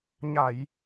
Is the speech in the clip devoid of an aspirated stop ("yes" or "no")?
yes